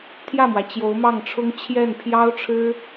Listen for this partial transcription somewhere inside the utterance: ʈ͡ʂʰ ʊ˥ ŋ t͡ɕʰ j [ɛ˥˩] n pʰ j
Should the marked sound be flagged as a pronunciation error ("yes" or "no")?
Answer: no